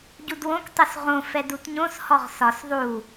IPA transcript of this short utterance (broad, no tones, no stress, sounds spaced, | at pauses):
ɟ u d w õ k tˤ u s ʁ õ f ɛ d u t ɲ õ s h ɔ ʁ s ɒ s ðˤ u